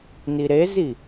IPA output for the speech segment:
n i ɾ e z i

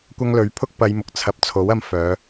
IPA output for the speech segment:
kʷ ɐ˥ ŋ l ɵ˨˥ ɥ pʰ ʊ˥ k̚ p ɐ˨˧ j m ʊ˨ k̚ t͡sʰ ɐ˧ p̚ t͡sʰ o˨˥ w ɐ˧ m f œː˨˧

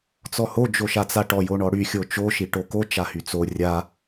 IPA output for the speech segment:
t͡s ɔ h o d͡ʒ o ʃ a t͡s a ʈ ɔ j o ɳ ɔ ɽ y xʲ o t͡ʃ o ʃ i ʈ o k o t͡ʃ a h y t͡s o rʲ a

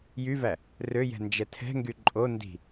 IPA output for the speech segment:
j y v æ | r ø j ɛ̤ n d͡ʒ ɛ tʰ ɛ̤ ŋ ɡ y ǃʼ o n d i̤

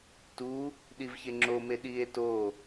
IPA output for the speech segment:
t u | ɗ i v ç e ŋ͡ǁ o m e ɗ i e̯ t o

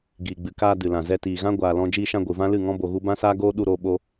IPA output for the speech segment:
ɡ iː˨ ɡ͡b ɨ˨ k aː˧ d ɨ˨ l ã˨ z ɛ˧ t iː˨ ɣ ã˦ ɡʷ aː˧ l ɔ̃˦ d͡ʒ iː˧ ʃ ã˧ ɡʷ ɨ˨ v ã˦ l ɨ˦˨ ŋ ɔ̃˦ b o˧ ɣ u˦ b ã˦ s aː˦ ɡ oː˦ ɗ u˧ ɾ oː˧ ɓ o˧

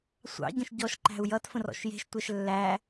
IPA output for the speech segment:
sʷ ɑ̰ ɟ ə̃ ʃ ɟ ɔ ʃ ǃ æ̤ u̯ j ʌ t f ə̃ r ɔ̰ ʃ j e̤ ʃ tʷ ɛ ʃ lː æ

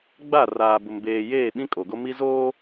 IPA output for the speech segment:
ɡ͡b a˦˨ r aː˨ b ʊ˨ m b eː˨ j eː˦˨ ɓ ĩ˦ kʼ o˨ ɡ o˦ m i˦ z oː˦

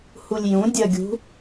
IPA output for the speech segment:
h u lʲ j ũ dʲ ɜ ɡʲ ṳ

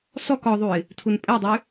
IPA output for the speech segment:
s ɔ k ɔ ðˤ u ɪ̯ | tʰ u n pʼ ɛ dˤ y

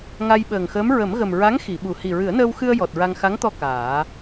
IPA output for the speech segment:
ŋ a˧ j ɓ əː˨˩ ŋ x əː˧˥ m ɹ ə˨˩˦ m ɣ ə˨˩ m ɹ a˧˥ ŋ x i˨˩˨ ɓ u˨˩ h i˨˩ ɹ ɨ˨˩˦ ə̯ n əː˧ w x ɨ˧ ə̯ j ɔ˨˩ t̚ ɹ a˧ ŋ x a˧˥ ŋ t̪ ɔ˧ k aː˨˩˦

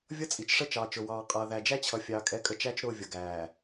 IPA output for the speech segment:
vʲ ʌ˦ t͡sʼ i˨ t͡ʃ ʂ ə˦ t͡ʃ ɑː˨ t͡ʃ ʊ˨ w ɑː˨ qʼ ʌː˨ ð æ˨ d͡ʒ æ˦ t͡ɕʰ ʌ˨ fʲ ɑː˨ kʼ ɛ˨˦ kʼ ə˨ t͡ʃ æ˦ t͡ʃ ɾ ʊː˦˨ vʲ ʌ˨ ɡ æː˨

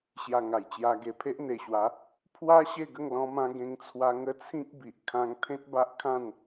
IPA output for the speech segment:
ɕ j a˧ ŋ a˨˩ j t͡ɕ j a˧ ɡ e˧ pʰ e˦ ʔ n̪ e˨˩ ɕ w a˨˦ | pʰ w a˦ ɕ e˥˧ ɡ ə˥˧ ŋ l ɔ̃˦ m ã˦ ɡ ẽ˦ ŋ t͡sʰ w a˦ ŋ ə˦ t͡sʰ ĩ˦ k̚ b i˨ ʔ kʰ ã˦ ŋ t̪ʰ ẽ˦ t̚ b a˦ ʔ kʰ ã˥˧ n

